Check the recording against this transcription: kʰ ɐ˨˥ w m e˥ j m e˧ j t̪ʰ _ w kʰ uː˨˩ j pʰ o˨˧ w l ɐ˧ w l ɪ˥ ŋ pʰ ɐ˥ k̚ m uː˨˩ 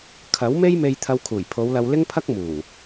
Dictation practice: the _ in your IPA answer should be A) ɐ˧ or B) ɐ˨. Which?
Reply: A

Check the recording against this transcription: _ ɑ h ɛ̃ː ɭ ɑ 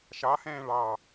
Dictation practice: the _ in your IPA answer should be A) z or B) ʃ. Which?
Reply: B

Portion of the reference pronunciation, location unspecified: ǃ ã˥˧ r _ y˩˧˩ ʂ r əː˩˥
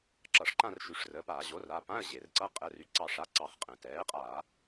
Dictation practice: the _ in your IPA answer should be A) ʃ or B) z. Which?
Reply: A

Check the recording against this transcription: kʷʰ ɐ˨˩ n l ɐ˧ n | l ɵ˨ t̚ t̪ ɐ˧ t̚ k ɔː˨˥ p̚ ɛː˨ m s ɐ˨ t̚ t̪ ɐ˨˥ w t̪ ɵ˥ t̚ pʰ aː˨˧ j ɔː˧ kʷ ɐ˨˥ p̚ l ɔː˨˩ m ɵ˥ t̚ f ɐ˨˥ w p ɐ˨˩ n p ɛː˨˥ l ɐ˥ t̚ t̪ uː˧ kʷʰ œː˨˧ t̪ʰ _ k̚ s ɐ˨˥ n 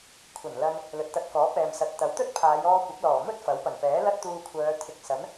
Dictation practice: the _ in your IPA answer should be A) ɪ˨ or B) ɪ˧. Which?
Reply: A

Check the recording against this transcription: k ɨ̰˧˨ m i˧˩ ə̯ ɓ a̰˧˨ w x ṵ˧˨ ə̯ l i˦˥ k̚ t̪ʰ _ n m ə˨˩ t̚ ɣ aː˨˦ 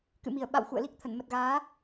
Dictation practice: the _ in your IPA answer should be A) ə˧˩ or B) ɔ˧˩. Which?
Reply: A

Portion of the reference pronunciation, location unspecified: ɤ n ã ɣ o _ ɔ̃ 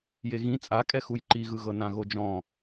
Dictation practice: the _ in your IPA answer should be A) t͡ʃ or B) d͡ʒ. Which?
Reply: B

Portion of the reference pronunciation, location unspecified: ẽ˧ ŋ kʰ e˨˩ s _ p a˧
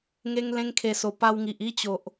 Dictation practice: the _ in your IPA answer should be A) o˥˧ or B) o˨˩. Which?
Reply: B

